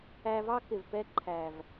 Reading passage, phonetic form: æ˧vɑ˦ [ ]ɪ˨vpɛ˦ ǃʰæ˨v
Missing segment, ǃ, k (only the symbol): k